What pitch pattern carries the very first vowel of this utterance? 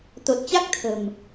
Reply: low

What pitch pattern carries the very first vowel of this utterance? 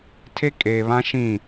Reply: high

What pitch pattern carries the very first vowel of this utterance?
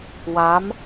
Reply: rising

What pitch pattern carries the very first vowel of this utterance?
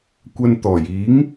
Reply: high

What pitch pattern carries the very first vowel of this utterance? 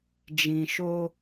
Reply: low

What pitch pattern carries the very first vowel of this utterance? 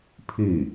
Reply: falling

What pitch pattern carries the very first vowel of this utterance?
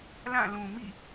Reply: falling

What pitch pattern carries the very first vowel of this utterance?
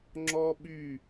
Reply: high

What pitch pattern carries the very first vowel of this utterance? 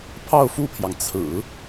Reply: falling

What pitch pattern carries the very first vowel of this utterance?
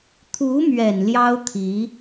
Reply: rising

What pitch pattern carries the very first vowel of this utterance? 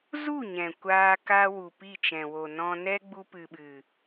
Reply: falling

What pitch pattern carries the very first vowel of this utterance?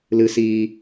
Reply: low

